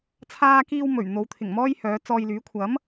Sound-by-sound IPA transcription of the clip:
t͡sʰ aː˧ k iː˧ w m ɵ˨˩ ɥ n̪ o˨˧ w t̪ʰ ɪ˨˩ ŋ m ɔː˥ j h œː˨˧ t͡s ɔː˧ j l yː˨˥ kʷʰ ɐ˨˥ m

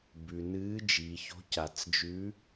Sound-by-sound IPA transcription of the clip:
b ʉ˩ n ɨː˨˦ d͡ʒ i˩ ç o̤˨˦ c a˩ t͡s d͡ʒ ʉ˨˦

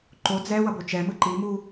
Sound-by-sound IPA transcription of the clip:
ǃ o d͡z ɛ w ʌ b o t͡ʃ ɛ m ɯ ǃ i m u

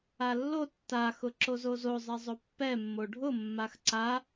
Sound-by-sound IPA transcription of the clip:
a lː o tː a x ʊ ǁ o z o z o zˤ ɛ zˤ o pː ɛ mː o ɖʱ ʊ mː a x ǀ a

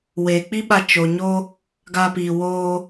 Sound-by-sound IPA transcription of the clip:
w eː˨ k͡p i˦ ɓ a˧ t͡ʃ o˨ ɲ o˦ | ɡ aː˧ p iː˨ w oː˧

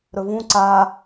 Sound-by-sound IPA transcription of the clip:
ɾ ɵ v ũ ǀ a

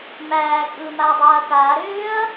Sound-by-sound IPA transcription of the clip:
m æː kʼ ɯː m a ɐ̯ dˤ aː ɐ̯ k aː ɾ ʏː ɐ̯

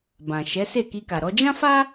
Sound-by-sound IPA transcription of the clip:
b ã˨ ʃ ɛ˨˦ s e˦˨ k i˧ k a˨ ɾ ɔ˧ d͡ʒ ã˦ f a˦

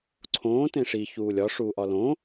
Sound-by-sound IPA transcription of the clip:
ǀʰ õː t ẽ ʂ i ç uː lʲ ɒ ʂ uː ʔ ɒ l õ

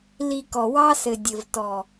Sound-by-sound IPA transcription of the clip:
l i˧ k ɔ˨ w ɑ˦ s ɘ˨ dʲ ɘ˨ v t ɔ˨

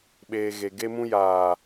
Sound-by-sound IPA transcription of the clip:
ɓ eː˨ ɣ e˨ ɡ e˧ m ũ˧ j aː˨

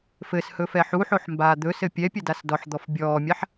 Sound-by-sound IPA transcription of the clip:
f ɘ s h ɵ f ɛ ħ u ħ o ħ m b aː d̪ ɵ s ɘ pʲ ɛ pʲ ɘ d a s d ɔ ħ d̪ ɔ f bʲ ɔː mʲ a ħ

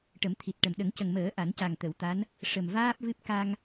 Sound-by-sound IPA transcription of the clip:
ʈ ə˨˩˦ m t̪ʰ i˨˩ t̚ ʈ ə˨˩ m ɗ ə˨˩˦ ŋ c ə˨˩ ŋ m əː˨˩˦ ʔ a˨˩˦ n c a˨˩ ŋ t̪ ə˨˩˨ w t̪ a˧˥ n | ʂ ə˨˩ m v aː˦˥ p̚ v ɨ˦˥ p̚ k a˧ ŋ

